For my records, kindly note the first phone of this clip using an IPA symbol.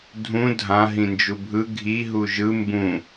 dʱ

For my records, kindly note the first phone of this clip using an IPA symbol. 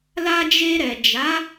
l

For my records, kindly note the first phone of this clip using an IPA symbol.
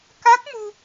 k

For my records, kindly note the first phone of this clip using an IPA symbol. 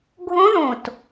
ɡʱ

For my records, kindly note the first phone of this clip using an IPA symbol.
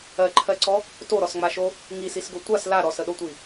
ɜ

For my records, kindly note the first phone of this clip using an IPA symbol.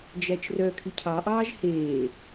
d͡ʒ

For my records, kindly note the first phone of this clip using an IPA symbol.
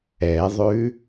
ɛ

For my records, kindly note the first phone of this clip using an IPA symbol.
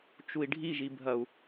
t͡ʃ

